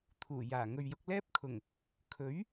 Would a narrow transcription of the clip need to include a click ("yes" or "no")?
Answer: no